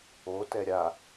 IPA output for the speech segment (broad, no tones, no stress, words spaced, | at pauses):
o tɛɾʲa